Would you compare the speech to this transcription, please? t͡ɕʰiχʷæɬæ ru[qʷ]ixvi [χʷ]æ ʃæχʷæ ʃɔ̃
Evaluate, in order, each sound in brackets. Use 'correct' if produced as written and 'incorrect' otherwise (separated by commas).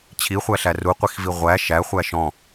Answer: correct, incorrect